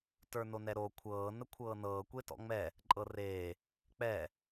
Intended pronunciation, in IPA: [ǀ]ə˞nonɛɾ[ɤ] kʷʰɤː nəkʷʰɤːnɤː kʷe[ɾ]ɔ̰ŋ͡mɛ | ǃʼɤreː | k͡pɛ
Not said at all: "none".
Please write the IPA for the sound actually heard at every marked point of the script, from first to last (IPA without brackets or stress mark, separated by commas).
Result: t, o, t